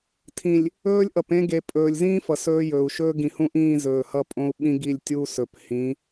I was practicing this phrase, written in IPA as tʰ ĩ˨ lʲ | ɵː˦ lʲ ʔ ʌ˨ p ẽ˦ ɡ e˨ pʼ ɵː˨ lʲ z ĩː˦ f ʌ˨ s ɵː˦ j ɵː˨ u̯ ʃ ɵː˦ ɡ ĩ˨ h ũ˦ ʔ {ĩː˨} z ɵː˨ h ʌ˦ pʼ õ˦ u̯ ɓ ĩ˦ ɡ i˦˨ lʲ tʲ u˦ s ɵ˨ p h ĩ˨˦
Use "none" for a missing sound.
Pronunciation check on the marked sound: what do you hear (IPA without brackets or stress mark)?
ĩː˦˨